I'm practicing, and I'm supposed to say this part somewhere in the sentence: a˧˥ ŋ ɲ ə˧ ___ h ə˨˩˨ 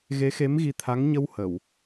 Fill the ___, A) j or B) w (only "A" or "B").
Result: B